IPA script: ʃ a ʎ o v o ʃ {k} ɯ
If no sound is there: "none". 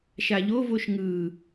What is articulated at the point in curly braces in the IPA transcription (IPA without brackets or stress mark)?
ŋ